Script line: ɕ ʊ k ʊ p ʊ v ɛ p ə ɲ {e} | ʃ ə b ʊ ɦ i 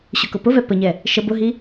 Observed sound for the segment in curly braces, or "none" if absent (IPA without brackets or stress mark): ɛ